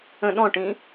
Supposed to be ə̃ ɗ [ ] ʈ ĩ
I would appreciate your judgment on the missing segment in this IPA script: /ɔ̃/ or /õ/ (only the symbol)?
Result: ɔ̃